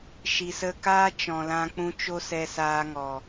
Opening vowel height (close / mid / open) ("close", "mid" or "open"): close